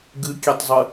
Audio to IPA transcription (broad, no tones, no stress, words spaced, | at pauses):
ɡɨkʲetˤzˤɨ